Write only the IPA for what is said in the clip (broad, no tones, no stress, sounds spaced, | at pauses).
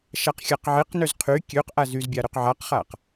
ʃ a q xʲ a q ʕ e q n ø z qʰ y kʲ ø q ʔ a z y z bʲ a ɾ ø q ʕ a q χ a q